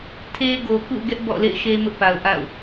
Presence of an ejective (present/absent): absent